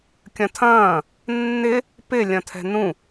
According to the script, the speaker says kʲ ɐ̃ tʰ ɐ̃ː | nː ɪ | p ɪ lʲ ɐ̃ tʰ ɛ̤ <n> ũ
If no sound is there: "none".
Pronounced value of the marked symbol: n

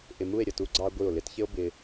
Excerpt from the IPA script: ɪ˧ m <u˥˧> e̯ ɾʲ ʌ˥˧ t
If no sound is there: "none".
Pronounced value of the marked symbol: u˥˧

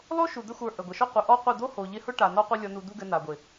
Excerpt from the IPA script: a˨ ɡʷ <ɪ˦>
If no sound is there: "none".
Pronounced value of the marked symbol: ɪ˨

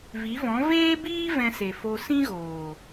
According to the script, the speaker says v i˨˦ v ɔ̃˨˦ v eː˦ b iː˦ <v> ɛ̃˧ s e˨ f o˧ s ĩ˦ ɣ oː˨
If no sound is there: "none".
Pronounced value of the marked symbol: v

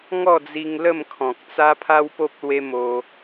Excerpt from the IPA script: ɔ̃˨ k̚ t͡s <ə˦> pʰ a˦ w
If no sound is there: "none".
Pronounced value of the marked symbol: a˦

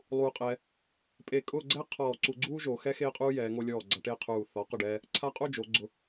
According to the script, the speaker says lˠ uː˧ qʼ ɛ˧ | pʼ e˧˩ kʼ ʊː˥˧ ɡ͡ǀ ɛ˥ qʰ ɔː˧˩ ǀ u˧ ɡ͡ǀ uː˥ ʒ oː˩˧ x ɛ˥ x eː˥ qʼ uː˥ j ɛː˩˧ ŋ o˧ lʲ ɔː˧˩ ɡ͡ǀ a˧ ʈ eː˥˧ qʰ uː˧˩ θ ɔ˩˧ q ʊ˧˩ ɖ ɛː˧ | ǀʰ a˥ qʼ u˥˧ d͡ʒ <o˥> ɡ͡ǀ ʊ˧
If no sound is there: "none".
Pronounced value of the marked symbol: o˩˧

